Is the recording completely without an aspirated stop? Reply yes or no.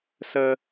yes